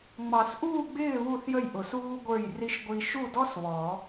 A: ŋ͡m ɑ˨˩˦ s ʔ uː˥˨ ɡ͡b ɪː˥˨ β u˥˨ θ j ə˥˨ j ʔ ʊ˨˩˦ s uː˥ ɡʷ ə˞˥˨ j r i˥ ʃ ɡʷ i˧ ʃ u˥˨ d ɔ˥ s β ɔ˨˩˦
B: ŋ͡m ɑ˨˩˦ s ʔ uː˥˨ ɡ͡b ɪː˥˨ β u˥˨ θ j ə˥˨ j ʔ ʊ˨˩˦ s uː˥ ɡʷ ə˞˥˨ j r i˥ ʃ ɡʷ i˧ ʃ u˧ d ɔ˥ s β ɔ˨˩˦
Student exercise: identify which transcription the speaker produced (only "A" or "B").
A